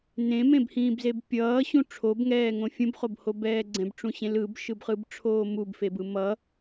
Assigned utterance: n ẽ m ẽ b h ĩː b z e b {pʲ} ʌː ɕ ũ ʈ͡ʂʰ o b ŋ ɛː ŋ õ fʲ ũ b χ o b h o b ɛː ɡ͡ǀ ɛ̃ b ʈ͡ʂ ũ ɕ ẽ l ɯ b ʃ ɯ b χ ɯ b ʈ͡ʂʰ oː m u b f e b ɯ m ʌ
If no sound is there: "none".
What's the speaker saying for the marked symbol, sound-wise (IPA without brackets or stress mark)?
pʲ